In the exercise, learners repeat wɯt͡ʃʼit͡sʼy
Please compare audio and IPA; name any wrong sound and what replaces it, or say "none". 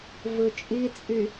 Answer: w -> v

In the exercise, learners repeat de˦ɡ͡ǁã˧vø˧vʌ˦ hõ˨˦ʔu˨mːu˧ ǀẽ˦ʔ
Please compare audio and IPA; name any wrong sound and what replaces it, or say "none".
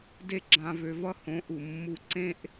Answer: none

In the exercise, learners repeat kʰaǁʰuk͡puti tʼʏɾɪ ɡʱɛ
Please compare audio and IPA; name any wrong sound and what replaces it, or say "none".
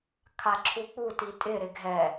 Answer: ʏ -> ɪ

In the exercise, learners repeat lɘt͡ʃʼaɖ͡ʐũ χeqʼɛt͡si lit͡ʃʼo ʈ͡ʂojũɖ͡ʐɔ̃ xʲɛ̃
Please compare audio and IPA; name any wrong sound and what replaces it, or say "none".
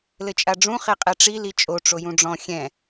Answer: t͡s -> ʈ͡ʂ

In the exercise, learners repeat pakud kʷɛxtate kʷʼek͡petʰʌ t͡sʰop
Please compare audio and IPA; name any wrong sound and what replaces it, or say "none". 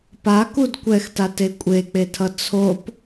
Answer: none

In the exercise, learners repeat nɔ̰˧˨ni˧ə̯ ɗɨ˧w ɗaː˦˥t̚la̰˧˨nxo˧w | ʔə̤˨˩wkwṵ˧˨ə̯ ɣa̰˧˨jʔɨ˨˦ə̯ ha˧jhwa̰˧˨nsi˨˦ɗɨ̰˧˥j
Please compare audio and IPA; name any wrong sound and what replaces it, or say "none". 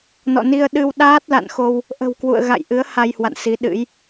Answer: none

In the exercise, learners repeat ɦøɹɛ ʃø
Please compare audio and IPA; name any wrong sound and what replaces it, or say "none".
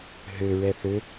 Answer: ʃ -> θ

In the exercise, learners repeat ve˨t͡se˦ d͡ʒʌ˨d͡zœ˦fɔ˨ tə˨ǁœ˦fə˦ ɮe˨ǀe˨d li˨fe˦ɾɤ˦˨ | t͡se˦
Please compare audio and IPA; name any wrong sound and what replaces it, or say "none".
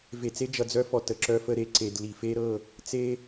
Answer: ɮ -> ɾ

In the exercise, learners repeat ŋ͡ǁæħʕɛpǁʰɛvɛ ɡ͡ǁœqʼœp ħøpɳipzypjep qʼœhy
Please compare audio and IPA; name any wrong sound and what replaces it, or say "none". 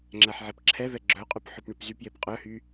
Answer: none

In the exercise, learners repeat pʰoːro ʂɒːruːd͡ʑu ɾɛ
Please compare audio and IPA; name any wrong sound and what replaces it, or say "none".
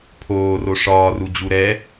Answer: uː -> u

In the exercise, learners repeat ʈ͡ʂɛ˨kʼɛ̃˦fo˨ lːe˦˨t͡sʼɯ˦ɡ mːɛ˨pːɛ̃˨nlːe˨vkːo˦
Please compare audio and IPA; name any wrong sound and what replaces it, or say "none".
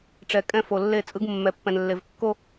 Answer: none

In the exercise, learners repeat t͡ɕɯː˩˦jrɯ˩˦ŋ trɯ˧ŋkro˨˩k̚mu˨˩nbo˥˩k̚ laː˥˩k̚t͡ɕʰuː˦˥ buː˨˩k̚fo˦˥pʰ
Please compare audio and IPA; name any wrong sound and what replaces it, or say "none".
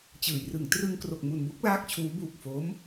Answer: pʰ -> m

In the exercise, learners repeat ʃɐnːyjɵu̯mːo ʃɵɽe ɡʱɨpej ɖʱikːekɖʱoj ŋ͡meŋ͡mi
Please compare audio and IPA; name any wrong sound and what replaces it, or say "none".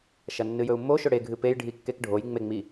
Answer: y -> ɨ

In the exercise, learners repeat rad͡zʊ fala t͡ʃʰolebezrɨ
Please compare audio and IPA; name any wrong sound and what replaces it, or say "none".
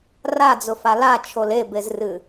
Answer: none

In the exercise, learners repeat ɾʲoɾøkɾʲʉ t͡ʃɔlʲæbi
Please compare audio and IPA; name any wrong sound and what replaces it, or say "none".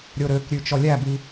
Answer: none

